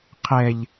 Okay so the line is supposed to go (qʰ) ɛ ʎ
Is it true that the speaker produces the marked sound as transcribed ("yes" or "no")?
yes